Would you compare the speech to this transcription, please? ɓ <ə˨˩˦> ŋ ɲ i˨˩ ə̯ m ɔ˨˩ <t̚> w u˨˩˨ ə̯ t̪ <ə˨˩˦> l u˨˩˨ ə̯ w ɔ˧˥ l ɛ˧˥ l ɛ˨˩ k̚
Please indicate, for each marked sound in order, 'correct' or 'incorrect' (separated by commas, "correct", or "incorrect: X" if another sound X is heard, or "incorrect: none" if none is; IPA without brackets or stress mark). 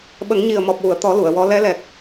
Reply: correct, incorrect: p̚, incorrect: ɔ˨˩˦